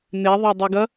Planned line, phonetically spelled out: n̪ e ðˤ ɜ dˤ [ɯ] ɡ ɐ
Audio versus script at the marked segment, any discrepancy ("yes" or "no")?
yes